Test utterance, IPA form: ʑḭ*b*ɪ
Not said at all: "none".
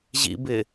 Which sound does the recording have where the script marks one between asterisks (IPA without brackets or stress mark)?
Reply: b